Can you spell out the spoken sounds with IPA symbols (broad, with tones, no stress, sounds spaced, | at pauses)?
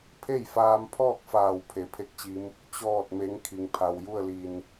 pʰ e˥˨ j f aː˧ m pʰ ɔː˥˨ k̚ f aː˧˩ w pʰ e˩˧ pʰ e˥˨ k̚ t͡ɕ i˧˥ m | t͡ɕ ɔː˥˨ t̚ m e˧˥ ŋ kʰ i˩ ŋ pʰ a˩ w j u˥˨ ə̯ l i˧˩ n